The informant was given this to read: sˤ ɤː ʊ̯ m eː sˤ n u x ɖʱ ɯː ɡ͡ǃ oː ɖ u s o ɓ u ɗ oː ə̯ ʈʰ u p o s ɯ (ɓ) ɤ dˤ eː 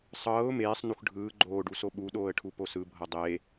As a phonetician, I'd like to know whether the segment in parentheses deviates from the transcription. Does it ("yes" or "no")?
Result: yes